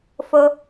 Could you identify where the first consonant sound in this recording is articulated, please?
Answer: labial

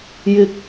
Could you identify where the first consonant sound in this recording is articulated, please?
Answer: palatal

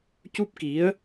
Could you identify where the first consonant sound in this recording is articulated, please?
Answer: palatal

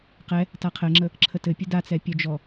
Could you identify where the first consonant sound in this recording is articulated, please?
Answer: uvular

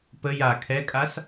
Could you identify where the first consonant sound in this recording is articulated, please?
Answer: labial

